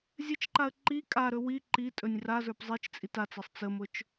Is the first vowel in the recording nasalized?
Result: no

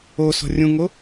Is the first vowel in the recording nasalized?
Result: no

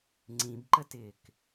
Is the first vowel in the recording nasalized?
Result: yes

